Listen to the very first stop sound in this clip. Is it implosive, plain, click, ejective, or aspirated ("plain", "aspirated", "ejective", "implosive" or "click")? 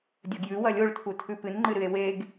plain